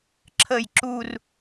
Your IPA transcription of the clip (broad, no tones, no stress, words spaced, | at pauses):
ǁʰəj ǁur